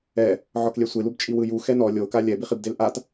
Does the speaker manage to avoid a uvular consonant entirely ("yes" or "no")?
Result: no